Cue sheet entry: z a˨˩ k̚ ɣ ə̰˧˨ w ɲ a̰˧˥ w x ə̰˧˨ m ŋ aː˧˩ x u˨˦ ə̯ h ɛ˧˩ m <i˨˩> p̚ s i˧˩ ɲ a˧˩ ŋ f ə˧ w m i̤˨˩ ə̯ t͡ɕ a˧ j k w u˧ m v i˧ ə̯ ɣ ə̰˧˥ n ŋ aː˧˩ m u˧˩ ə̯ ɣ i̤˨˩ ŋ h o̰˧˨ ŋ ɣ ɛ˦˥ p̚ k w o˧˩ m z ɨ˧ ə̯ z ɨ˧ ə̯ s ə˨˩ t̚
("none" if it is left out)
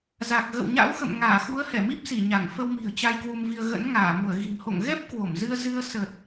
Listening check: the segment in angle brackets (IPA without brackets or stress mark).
i˦˥